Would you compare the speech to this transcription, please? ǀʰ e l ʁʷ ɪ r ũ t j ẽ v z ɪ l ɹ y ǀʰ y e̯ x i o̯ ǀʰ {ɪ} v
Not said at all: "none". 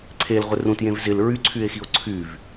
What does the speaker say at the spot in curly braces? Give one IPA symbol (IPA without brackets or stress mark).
y